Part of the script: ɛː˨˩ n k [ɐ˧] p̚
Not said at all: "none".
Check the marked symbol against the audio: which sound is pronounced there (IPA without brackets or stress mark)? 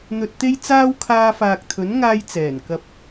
ɐ˧